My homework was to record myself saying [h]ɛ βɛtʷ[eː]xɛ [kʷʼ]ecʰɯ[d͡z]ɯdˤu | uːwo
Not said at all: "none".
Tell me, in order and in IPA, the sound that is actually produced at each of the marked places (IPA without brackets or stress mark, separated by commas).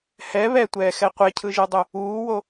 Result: h, ɛː, qʷ, ʒ